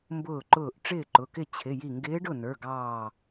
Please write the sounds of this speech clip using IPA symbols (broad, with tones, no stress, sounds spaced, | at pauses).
m b ʊː˥˩ ǃ ʊː˥˩ ʔ ʈ͡ʂ ɪː˥˩ ǃ ʊ˩˧˩ k ɪ˥˩ t͡ɕʰ ɪ˩˧˩ j i˧˩ ŋ ɡ ɪː˧˥ ɖ ʊ˥˩ n ə˞˩˧˩ ɡ ɑː˧˩